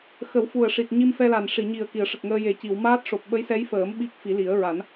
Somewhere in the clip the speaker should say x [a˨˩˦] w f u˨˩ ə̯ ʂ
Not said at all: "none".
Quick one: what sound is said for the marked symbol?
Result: ə˨˩˦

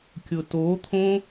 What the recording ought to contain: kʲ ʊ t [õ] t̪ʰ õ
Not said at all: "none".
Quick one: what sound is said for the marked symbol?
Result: o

